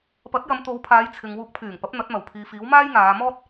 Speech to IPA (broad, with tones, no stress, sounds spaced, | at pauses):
p ɐ˨˥ t̚ j ɐ˨˧ m t̪ o˨˧ w pʰ aː˨˧ j t͡sʰ ɪ˨ ŋ w uː˧ k̚ pʰ yː˨˩ ŋ p ɐ˨˥ p̚ n̪ ɐ˨˥ t̚ m ɐ˨˩ w pʰ iː˨ f iː˨˥ w m aː˥ j ŋ aː˨˧ m ɔː˥ t̚